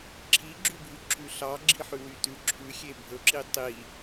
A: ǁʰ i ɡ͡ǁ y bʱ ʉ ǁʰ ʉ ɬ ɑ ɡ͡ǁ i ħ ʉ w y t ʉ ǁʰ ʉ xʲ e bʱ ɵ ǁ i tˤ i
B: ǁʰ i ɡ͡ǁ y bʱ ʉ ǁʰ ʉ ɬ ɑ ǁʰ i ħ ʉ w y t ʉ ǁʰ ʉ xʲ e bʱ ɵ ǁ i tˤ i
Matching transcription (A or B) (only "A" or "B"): A